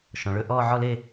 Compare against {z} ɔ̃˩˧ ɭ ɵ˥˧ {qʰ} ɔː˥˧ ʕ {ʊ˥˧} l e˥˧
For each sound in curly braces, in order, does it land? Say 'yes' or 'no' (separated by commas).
no, no, no